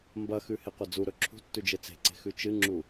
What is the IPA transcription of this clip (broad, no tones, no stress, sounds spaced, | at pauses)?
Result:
m b ɐ x ʉ h e qʷ ɐ d͡z u ɾ ɵ ǁʰ ṳ tː ʉ d͡ʒ e t͡s e̤ ǀ e̤ x ʉ t͡ʃ ɨ ŋ͡ǁ u